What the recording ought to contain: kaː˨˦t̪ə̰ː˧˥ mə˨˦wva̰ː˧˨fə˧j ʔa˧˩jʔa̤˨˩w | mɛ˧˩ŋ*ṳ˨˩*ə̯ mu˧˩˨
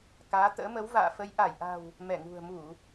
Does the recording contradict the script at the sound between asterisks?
no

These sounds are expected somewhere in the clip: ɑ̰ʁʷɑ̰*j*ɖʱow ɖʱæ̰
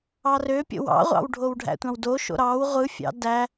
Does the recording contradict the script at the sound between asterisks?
yes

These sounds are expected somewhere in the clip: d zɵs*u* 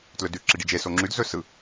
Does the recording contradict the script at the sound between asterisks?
yes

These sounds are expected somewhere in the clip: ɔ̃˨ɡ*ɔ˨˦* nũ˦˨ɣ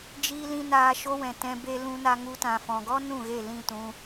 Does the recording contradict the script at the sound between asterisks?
yes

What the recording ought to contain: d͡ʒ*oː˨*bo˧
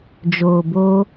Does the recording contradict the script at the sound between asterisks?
no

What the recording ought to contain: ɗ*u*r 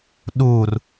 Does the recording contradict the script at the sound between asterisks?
no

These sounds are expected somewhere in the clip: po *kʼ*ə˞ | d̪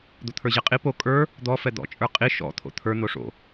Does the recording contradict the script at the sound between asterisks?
no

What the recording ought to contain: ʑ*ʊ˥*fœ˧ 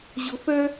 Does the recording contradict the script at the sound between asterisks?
yes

